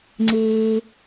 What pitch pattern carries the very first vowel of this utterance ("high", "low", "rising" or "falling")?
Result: low